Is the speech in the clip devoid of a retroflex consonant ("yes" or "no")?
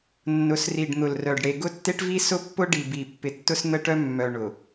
no